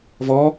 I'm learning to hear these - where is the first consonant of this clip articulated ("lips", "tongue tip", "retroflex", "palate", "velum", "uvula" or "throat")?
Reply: lips